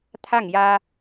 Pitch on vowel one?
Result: falling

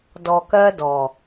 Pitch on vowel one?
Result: low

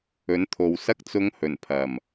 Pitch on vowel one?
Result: rising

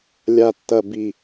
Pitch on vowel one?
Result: low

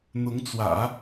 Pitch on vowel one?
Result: rising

